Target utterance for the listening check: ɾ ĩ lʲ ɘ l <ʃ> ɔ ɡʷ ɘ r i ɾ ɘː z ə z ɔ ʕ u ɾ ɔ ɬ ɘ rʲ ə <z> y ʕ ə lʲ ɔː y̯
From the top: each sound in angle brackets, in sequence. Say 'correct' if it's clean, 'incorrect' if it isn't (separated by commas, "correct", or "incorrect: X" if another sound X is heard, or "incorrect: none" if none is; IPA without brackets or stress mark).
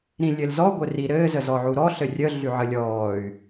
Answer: incorrect: z, incorrect: ɮ